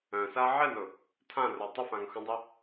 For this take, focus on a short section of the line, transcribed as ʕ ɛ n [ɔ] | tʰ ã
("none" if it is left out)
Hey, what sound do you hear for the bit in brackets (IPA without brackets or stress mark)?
ʊ